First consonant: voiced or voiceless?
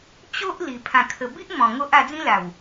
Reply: voiceless